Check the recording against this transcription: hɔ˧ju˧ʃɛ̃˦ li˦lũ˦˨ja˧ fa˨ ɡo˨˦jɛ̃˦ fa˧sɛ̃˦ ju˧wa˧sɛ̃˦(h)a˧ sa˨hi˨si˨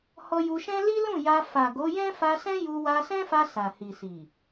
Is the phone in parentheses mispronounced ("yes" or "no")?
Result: yes